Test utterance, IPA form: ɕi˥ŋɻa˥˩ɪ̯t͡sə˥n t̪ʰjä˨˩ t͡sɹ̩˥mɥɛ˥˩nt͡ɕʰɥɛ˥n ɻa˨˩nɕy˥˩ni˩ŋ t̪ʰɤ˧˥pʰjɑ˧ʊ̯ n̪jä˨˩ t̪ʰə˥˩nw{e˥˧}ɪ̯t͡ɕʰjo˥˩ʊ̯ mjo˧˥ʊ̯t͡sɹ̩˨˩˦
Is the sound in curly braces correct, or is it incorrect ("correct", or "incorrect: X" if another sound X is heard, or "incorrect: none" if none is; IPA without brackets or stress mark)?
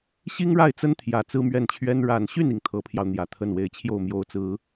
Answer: incorrect: e˧˥